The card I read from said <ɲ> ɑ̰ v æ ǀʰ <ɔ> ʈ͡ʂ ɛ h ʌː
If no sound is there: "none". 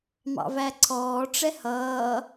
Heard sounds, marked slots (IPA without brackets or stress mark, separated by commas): m, ɔː